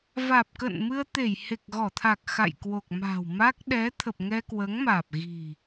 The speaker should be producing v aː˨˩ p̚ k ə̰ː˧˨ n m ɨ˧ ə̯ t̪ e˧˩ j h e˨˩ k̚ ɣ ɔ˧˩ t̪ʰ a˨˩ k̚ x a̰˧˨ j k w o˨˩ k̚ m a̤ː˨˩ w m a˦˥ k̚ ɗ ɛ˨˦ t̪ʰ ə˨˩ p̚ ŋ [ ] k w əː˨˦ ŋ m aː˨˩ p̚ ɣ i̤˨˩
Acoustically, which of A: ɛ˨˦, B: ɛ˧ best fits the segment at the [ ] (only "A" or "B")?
B